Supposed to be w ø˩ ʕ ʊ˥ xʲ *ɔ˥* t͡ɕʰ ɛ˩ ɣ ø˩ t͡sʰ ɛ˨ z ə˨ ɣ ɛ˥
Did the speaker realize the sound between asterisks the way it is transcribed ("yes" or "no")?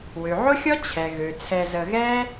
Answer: yes